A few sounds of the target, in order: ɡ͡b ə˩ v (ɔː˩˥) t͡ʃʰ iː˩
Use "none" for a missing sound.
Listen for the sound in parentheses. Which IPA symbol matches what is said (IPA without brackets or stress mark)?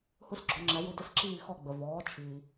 ɔː˩˥